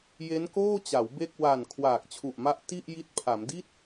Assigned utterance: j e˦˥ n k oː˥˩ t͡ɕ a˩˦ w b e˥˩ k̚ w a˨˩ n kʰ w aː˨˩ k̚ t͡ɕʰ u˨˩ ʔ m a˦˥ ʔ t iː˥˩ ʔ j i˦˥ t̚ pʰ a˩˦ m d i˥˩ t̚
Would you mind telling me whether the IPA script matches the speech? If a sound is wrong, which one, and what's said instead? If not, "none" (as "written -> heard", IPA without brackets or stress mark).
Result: iː˥˩ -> i˥˩